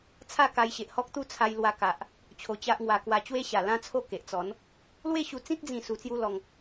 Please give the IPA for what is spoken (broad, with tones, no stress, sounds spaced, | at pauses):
t͡sʰ a˥˧ k a˧ j ɕ e˨ ʔ h ɔ˦ k̚ t̪ u˦ t͡sʰ a˧ j l w a˧ k a˨ ʔ | t͡ɕʰ o˧ t͡ɕ a˦ ʔ ŋ w a˧ k w a˧ t͡ɕ w e˦ ɕ a˨˩ l ã˦ t͡sʰ o˥˧ k e˨ ʔ t͡s ɔ˨˦ n | l w e˥˧ ɕ u˧ t͡s ĩ˦ t̚ d͡z ĩ˥˧ s u˧ t͡s j u˦ l ɔ˧ ŋ